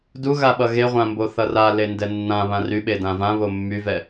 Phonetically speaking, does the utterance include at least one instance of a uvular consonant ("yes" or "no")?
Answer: yes